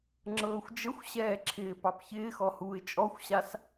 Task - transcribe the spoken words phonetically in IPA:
ŋ͡ǁɤːxʷd͡ʒəxʷɕɛː ǁʰɪːpɑpçɪːxɔ huːɪ̯t͡ʃʼɔxʷɕas

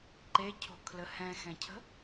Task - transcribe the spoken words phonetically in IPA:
ǃecʰo̤kʰlə hɛ̃xɛ̃cʰə̤

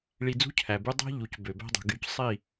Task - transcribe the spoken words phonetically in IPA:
ɭi˧d͡zṳ˦ cʰæ˨by˧dˤæ̤˦ ʎu˨c bø˨bæ̤˦dˤṳ˨ɡy˧c sˤi˦˨

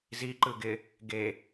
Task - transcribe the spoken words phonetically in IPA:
ziǃɯ ɡɪ | ɡe

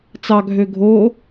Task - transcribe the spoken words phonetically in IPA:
t͡sɑ ɡʱøɡʱo

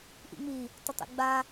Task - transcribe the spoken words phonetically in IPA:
ʔḭŋ͡mi | tˤotˤḭɡ͡ba

